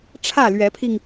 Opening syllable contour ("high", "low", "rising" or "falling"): falling